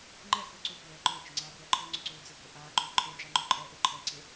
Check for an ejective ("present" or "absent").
present